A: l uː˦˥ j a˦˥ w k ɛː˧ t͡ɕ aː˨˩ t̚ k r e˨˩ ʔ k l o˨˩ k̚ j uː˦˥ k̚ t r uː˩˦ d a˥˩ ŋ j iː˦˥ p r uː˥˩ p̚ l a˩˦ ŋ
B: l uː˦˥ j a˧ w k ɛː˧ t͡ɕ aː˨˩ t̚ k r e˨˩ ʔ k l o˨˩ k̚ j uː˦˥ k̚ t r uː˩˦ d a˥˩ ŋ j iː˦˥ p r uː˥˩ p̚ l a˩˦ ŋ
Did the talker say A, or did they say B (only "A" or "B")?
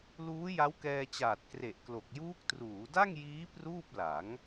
A